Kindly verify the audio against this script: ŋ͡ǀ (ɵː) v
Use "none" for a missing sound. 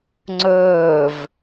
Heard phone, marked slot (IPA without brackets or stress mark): ɵː